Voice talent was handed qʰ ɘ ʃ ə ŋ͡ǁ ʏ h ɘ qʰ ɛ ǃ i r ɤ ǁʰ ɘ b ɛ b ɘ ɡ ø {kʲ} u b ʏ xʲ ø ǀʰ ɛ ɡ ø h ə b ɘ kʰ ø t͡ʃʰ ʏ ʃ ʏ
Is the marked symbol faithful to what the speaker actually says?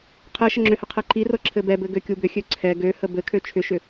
yes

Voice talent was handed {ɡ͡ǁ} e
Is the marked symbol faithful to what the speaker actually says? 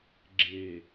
yes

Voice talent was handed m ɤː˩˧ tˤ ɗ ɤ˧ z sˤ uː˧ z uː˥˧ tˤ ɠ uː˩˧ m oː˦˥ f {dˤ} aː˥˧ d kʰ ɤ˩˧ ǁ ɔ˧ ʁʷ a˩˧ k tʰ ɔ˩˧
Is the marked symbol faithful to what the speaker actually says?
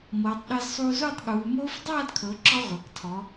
yes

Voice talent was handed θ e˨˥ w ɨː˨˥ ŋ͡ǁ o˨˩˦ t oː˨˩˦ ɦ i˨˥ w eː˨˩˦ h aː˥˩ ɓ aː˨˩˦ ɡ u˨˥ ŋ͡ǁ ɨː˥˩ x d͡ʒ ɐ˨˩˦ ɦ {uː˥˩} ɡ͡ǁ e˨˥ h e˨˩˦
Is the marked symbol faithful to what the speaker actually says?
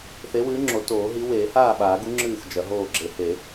no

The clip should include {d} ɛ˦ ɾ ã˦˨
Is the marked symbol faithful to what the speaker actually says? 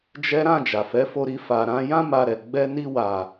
no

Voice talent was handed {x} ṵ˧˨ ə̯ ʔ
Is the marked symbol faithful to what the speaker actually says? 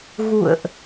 no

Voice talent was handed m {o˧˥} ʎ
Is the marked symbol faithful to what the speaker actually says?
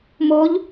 yes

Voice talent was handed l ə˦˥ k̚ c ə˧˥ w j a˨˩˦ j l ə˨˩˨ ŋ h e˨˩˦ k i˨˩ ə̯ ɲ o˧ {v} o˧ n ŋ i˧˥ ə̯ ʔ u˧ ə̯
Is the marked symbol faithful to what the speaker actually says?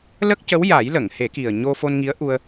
no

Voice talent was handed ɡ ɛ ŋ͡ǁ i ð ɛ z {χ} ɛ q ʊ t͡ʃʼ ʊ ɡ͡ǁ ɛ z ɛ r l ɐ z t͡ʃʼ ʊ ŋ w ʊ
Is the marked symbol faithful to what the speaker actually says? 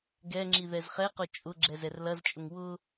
yes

